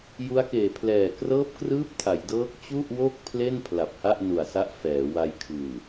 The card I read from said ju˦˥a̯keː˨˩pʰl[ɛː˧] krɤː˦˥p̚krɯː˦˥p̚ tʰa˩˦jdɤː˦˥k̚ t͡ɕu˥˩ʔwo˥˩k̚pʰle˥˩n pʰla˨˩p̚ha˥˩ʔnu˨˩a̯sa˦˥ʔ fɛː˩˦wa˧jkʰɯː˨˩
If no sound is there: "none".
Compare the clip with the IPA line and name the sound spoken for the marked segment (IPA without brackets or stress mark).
ɛː˨˩